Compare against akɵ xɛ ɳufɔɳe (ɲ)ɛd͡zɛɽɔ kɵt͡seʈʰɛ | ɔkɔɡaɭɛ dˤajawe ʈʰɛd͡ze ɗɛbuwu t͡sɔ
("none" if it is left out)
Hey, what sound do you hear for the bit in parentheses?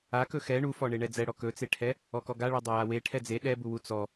ɳ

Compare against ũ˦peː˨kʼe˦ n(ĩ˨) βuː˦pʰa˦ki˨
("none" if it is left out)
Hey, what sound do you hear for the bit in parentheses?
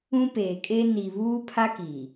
i˨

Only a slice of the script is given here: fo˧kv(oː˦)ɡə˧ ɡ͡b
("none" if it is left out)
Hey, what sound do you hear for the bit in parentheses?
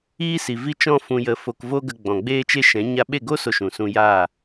o˦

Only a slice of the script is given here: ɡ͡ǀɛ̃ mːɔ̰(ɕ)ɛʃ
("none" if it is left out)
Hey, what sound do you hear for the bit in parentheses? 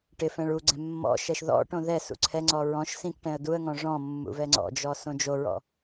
ʃ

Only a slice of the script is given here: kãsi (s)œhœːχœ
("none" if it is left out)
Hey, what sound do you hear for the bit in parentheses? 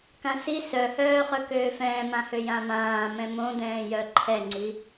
s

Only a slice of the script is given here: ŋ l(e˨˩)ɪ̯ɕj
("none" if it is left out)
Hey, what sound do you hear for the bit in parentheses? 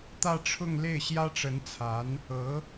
e˥˩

